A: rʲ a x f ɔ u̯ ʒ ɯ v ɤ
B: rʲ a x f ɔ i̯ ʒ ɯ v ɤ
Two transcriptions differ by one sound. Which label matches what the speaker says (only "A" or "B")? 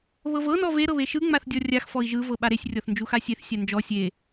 B